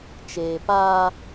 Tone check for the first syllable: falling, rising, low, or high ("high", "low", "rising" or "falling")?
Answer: low